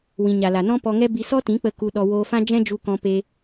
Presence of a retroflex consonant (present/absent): absent